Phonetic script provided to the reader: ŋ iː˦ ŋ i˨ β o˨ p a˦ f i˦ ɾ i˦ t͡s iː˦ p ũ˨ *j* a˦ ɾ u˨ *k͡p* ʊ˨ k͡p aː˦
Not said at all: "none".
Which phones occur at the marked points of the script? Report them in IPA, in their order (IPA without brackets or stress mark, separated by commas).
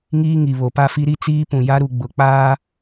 j, ɡ͡b